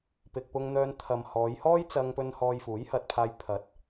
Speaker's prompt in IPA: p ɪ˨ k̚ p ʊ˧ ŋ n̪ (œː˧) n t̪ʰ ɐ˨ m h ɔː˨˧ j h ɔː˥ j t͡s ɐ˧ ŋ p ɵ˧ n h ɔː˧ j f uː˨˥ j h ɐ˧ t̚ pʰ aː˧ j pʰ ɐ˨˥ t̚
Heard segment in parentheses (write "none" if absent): œː˧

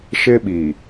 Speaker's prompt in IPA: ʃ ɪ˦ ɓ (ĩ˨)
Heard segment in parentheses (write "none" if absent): i˨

